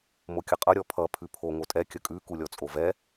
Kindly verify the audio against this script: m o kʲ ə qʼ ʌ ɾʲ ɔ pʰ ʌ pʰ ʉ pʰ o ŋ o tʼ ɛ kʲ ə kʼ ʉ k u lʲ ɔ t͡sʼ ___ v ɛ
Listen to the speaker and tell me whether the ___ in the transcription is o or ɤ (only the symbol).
o